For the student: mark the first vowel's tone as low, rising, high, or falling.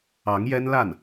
rising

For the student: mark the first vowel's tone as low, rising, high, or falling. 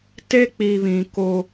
high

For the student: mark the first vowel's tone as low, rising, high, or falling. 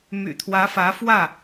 low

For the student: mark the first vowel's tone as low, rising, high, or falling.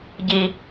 low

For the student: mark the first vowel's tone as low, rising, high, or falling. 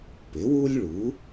rising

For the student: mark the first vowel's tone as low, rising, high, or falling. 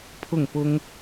falling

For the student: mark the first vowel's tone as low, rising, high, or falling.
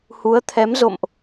rising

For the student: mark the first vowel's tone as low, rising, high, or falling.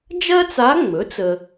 high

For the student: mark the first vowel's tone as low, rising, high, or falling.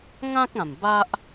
high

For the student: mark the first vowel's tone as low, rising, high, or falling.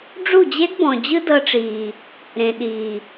falling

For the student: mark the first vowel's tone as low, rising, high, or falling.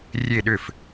falling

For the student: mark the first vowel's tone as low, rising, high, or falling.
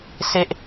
high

